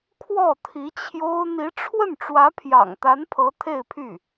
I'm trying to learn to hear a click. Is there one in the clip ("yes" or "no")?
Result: no